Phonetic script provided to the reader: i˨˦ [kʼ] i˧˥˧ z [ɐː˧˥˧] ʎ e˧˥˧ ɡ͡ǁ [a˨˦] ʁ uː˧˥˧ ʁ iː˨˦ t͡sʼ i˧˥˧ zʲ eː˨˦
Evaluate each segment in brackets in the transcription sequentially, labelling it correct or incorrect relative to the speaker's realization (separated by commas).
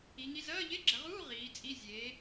incorrect, correct, incorrect